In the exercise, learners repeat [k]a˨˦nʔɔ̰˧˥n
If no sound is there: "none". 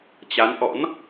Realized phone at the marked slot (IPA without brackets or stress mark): t͡ɕ